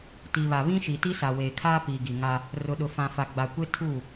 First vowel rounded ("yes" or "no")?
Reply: no